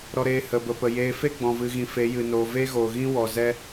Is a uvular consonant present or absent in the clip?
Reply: absent